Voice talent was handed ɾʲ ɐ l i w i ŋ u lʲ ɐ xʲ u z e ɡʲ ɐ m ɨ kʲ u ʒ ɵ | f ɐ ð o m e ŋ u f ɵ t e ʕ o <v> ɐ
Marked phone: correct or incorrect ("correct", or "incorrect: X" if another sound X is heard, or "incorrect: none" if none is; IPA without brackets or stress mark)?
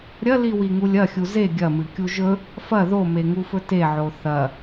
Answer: incorrect: θ